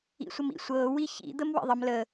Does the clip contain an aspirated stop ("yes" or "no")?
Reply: no